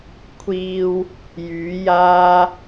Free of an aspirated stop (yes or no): no